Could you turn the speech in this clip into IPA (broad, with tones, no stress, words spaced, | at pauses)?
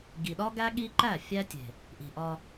ɡi˨ɗɒ˦ ɡæ˦ɠi˦ǃæ˦˨ fʲæ˦tʲe̤˨ | ʔi̤˨ʔɒ˧